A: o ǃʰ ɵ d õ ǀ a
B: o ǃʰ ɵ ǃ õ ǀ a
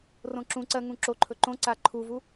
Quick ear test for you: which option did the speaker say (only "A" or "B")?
B